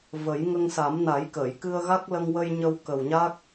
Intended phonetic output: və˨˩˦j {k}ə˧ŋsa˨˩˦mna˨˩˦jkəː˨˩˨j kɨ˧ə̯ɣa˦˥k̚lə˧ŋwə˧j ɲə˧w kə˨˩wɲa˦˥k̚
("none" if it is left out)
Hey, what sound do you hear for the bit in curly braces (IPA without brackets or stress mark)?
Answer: ŋ